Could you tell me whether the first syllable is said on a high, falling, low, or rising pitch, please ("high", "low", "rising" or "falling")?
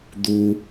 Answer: low